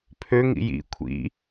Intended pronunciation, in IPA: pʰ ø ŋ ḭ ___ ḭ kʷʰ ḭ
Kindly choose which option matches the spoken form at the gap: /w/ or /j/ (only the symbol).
j